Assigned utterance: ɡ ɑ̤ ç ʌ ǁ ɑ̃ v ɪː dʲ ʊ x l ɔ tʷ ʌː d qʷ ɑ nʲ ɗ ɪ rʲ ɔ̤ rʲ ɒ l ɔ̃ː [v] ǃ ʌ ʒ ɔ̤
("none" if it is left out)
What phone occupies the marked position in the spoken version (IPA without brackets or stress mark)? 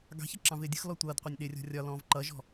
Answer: v